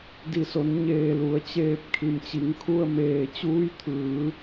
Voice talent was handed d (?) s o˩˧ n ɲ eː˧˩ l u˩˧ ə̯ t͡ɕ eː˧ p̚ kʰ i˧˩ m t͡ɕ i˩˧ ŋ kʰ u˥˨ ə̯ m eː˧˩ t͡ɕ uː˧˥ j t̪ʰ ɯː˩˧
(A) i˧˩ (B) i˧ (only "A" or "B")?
A